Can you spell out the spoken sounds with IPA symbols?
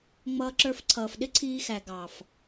ŋ͡m ʌː˧ ǁ ə˞˧ f ǀʰ ʌː˨ f ɗ ɪ˦ ǀʰ iː˧ x æ˨ ɡ ɑ˨ f

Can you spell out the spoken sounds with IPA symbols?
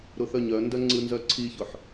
ɾ ʊ θ œ ɲ œ n d œ ŋ͡ǀ ɯ n z œ ǀʰ i ç ʊ ħ

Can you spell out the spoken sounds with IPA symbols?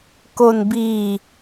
k o˧ n b iː˧

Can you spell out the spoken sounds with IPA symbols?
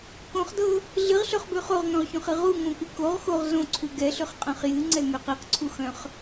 k õ χ d ɤ | ɮ ɨ ʁ ɬ œ χ b ø χ o ʁ ŋ œ̃ ʁ ç õ χ ɨ ʁ u ŋ õ k ɨ k o ʁ x o ʁ z õ ǀʰ u ɡ ɛ ɬ ø χ qʼ œ̃ χ j ɨ ŋ͡ǀ ɛ ŋ ø q ɨ q ǀʰ u x œ̃ χ

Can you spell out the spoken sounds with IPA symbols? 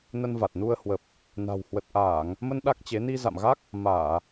n ə˧ n v a˨˩ t̚ n u˧ ə̯ h w ə˨˩ p̚ | n a̤˨˩ w h w ə˨˩ t̚ ʔ aː˧˩˨ ŋ | m ə˧ n ɗ a˦˥ k̚ t͡ɕ e˨˦ n i˧ z a̰˧˨ m ɣ a˦˥ k̚ | m aː˧˩˨

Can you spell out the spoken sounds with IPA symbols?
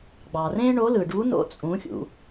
ɡ͡b ɑ˩ r ẽ˥ ɳ o˧˥ l ɯ˩ ɖ u˧˥ n o̰˧˥ t͡sʼ ũ˩˧ xʲ ṵ˩

